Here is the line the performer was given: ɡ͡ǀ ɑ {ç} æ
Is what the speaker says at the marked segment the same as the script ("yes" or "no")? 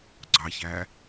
yes